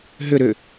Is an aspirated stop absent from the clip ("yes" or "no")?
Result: yes